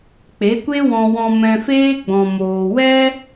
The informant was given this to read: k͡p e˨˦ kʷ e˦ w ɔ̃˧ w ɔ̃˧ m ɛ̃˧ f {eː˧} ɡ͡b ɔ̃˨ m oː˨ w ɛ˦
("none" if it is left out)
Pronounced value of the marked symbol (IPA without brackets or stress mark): eː˦